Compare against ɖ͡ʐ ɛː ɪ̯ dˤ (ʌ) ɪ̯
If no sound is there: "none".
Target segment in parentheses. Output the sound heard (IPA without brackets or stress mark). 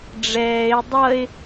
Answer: ʌ